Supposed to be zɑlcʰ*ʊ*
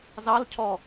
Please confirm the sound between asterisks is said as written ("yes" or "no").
no